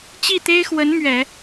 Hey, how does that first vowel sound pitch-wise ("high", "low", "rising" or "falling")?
falling